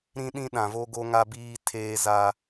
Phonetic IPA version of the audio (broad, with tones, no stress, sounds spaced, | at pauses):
ɾ ĩ˦ ɗ ĩ˦ ɗ ã˨ v o˦ ɡ o˦ ŋ a˦ b iː˦ tʰ eː˦ z a˦